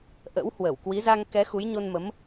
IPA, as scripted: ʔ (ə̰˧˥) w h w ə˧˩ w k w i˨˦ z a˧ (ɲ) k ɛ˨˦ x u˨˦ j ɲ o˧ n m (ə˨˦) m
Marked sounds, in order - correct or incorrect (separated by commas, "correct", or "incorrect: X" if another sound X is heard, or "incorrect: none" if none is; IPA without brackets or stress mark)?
correct, incorrect: ŋ, correct